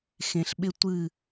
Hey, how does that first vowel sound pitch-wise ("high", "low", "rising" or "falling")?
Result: low